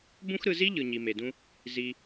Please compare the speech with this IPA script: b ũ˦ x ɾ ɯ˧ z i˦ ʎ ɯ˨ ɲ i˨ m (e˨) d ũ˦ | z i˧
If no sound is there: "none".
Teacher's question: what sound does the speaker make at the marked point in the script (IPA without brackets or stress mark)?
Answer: e˨